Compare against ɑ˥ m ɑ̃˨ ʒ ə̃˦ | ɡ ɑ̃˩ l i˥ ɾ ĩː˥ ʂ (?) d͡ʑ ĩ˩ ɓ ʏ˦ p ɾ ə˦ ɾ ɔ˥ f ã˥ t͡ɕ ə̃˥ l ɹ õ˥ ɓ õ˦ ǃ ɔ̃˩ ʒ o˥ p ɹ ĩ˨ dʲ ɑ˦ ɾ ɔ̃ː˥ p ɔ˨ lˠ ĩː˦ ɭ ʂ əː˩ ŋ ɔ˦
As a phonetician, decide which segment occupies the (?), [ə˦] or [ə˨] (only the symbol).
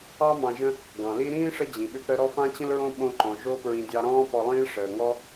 ə˦